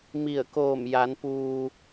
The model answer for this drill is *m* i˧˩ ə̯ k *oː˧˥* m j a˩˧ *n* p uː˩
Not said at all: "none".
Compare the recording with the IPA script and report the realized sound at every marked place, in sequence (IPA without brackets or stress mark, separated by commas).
m, oː˧˩, n